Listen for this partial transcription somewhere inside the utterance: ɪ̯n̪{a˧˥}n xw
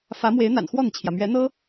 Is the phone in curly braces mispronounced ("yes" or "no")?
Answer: yes